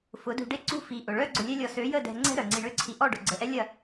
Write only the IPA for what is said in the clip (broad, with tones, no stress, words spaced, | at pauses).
fʊ˨˦dṳ˧ɖe˦ ǀṳ˦ fi˧ ʔʊ˨ɭœ˦ ɡ͡ǀʊ˧lʲɛ˦lʲɔ˧ sø˨˦jə˦˨ dɛ̤˧ŋ͡ǀɛ̤˦ ɾœ˨ŋ͡ǀi˧ɳø˦ǀʰi˧ ʔɔ˦˨ɖʊ˨ɡ͡ǀə˨ʔɛ˦ lʲɐ˦˨